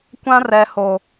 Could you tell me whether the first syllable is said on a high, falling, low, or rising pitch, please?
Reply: high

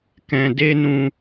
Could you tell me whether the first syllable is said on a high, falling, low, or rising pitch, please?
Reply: low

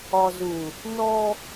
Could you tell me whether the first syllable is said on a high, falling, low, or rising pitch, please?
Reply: low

